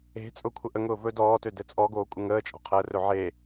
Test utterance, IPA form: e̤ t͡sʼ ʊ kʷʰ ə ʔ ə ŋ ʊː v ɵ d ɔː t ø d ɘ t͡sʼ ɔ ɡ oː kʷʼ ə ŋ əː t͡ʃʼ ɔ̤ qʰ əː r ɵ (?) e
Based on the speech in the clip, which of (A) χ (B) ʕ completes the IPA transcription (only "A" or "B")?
B